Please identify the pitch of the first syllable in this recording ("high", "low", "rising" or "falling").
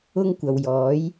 high